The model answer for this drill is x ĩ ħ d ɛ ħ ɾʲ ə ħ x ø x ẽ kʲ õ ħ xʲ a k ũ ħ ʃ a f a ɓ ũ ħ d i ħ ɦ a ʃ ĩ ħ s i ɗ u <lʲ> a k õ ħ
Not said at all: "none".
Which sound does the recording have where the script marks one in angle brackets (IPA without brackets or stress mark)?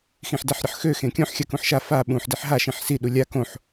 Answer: lʲ